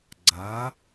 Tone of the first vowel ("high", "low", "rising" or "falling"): rising